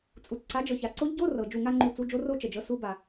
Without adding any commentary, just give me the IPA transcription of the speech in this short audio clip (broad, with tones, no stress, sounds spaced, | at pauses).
t͡sʼ u˩ t͡s ǀ a˨˥ d͡ʒ ɤ˩ ç a˩ ǀ o˦˥ ʎ ɟ o˧˥˧ r ɤ˩ d͡ʒ u˧˩ ŋ a˥˧ ŋ͡ǃ u˧˩ t͡s u˧˥˧ d͡ʒ o˦˥ r o˥˧ t͡ʃ ə˧˩ d͡ʒ ɤ˦˥ s u˦˥ b a˩